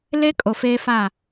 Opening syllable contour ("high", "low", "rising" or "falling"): high